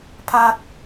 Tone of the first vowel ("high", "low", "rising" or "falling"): high